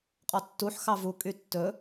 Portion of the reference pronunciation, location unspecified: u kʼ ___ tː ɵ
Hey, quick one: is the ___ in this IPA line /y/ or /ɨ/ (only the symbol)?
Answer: y